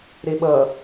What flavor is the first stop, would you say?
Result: implosive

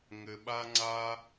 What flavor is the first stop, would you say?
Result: implosive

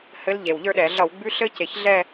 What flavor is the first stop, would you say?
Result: implosive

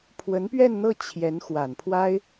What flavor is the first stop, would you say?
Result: aspirated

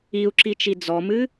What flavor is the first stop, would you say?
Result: click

